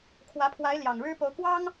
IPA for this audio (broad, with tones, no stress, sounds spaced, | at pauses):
kʰ w ä˧˥ pʰ w a˧˥ ɪ̯ l j ɑ˨˩ ŋ ɻ ɻ̩˥ p o˧˥ ʊ̯ k w ɑ˥ ŋ